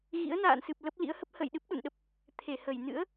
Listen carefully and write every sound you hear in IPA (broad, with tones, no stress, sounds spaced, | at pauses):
ɣ ḭ˧˥ ə̯ n a̰ː˧˨ n s ɨ˨˩ p̚ l ə˦˥ p̚ l ḭ˧˥ ə̯ h ə˦˥ p̚ h ə̰˧˨ j ɗ ɨ˦˥ p̚ ɗ ṵ˧˨ n ɗ ə˦˥ p̚ | t̪ʰ e˧˩ h ə˧˩ j n ɨ̰˧˥ ə̯